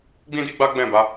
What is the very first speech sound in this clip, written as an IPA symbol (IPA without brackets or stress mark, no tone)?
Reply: ɡ͡b